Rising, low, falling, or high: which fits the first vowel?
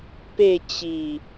falling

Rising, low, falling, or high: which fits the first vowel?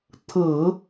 low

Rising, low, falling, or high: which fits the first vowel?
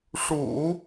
low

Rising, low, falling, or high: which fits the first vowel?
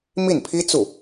falling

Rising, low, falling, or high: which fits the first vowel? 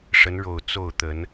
rising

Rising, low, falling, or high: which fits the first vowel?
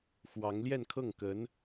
rising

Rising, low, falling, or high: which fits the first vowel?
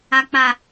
low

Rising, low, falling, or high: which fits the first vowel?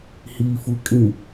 low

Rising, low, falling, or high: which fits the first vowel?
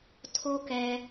high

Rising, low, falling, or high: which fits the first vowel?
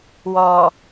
low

